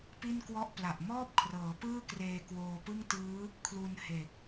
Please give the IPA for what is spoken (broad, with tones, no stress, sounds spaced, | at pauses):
p i˥˩ n k w ɔ˥˩ ʔ p l a˨˩ ʔ m ɔː˥˩ p̚ kʰ r ɤː˩˦ p ɯː˥˩ k r eː˧ k w oː˧ p ɯ˥˩ ŋ t ɯː˦˥ | kʰ l u˧ n h e˨˩ k̚